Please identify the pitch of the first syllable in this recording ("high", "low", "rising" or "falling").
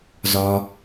low